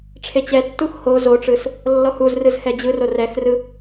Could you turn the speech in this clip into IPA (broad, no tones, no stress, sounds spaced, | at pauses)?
ʈ͡ʂʰ e t͡ɕ ɛ tː u x h o z o ʈ͡ʂ ɯ s | lː ɔ h u z r ɯ z h ɛ d͡ʑ ɯ r o r ɛ x r ɯ